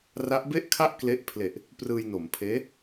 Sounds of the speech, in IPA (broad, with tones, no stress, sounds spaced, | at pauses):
r a˦˥ ʔ b e˥˩ ʔ kʰ a˥˩ ʔ k l e˦˥ ʔ pʰ l e˨˩ ʔ | p r ɯː˧ j n o˩˦ m pʰ eː˦˥